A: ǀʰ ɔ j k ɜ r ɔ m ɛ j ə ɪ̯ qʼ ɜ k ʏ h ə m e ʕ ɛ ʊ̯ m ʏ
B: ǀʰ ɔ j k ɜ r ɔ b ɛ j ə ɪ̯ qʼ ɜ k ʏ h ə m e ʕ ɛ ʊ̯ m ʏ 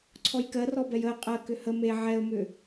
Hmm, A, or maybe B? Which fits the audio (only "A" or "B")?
B